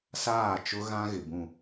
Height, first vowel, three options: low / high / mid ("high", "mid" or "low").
low